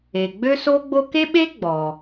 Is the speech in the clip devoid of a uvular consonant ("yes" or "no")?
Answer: yes